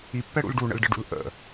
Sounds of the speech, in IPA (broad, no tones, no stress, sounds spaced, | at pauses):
i pː ɛ ɽ ṵ l ɖ u ɳ ə̰ l ɖ ə ɖ ṵ l ʔ ə̰